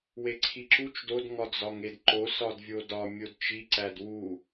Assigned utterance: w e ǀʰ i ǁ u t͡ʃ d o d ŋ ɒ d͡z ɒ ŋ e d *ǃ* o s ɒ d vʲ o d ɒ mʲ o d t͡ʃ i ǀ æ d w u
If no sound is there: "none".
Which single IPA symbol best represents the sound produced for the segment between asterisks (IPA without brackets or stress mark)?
ǃ